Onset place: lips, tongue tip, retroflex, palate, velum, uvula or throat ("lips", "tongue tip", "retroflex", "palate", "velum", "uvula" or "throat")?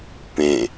lips